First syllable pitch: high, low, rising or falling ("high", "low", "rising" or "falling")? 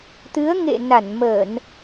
rising